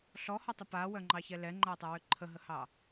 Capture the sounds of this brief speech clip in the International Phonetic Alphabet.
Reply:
ɬ ɔ h ɔ tˤ ʏ p a w œ ŋ͡ǃ ɑ ç ɛ l ɛ ŋ͡ǃ a tˤ ɛ w ʏ ǃʰ ə ɦ ə h ɑ

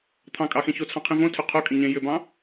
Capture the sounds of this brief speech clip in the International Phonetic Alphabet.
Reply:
t̪ʰ ɑ̃ kʼ ɑ x ẽ ç o t͡sʰ ɑ̃ qʰ ĩ v õ tʰ ʏ qʰ o kʼ ĩ ɲ ẽ j ʏ b ɑ̃

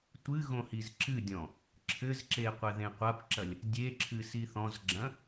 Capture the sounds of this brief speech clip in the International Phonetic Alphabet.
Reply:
tʷ ɨ ɣ õ h i z ǁ ɨ dʲ ɔ̃ | ǁʰ ɘ z ǁ e qʷ ɛ ð ẽ qʷ a p ǁ ɐ lʲ | dʲ e ǁʰ ɨ s i θ ɔ̃ z ɡ͡ǁ ɐ̃

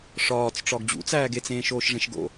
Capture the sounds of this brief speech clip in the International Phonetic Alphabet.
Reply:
ʂ ɒː t͡s ʈ͡ʂ ɒ ɡ d͡ʑ ṵ t͡s æː ɡ e t͡s ẽː ʃ oː ʃ ʐ ẽ ʃ ɡ o̰

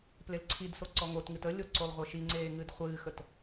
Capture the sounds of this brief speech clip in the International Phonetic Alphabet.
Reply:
p l e l ǀʰ i d s o ǀ ɔ ŋ o t ŋ ɨ t ə lʲ o ǀ o lˠ ʁʷ ɘ ʃ i ŋ͡ǀ eː ŋ ɨ d χʷ ɨː x ə t

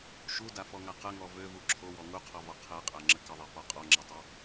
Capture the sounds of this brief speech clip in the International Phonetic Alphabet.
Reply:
ʃ u d a f ɔ ŋ a q ə ŋ ɔ v ø v u ǁʰ o w ɔ ŋ u qʰ ɔ v ɔ qʰ ɛ qʼ a ŋ͡ǁ ə k ə ðˤ ɛ f ɔ qʼ ɔ ŋ͡ǁ ɛ tˤ ø

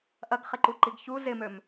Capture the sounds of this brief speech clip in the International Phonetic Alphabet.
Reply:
ʔ ɐ ɡ χ ɪ ǃ u ǃ i ɡ ç u z ɪ m ø m

